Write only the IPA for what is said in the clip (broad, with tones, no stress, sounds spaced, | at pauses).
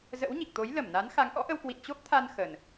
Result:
z ə̰˧˥ w ɲ i˨˩ k̚ t̪ o˨˦ j l ə˧˩ m n a˨˦ n x a˨˦ ŋ ʔ ɔ̰˧˥ ʔ ə˧ w k w ḭ˧˨ n t͡ɕ o˦˥ p̚ t̪ʰ a˧ n x ə˨˩ n